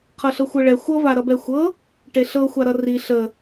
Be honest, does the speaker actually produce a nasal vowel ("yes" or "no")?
no